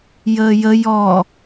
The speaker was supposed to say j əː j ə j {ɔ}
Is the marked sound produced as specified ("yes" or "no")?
yes